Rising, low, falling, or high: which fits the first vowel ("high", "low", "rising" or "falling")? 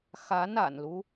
rising